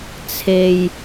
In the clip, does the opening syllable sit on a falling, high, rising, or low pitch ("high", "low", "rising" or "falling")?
low